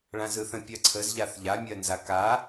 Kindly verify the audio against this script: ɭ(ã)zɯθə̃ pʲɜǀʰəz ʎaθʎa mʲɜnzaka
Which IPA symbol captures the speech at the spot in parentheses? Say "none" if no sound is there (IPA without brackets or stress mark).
ã